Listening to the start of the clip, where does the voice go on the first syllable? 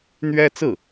high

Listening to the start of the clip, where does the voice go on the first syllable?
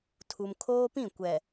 low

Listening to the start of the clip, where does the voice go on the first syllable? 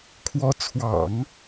rising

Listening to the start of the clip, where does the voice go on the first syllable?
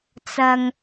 low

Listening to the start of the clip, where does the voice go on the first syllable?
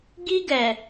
high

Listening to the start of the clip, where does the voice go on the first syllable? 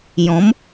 rising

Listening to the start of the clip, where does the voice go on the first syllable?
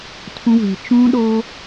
high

